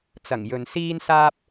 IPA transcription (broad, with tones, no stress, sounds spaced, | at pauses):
t͡s ɐ˨˩ ŋ j ɵ˨ n s iː˥ n s aː˥ p̚